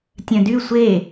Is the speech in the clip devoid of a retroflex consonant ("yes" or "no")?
yes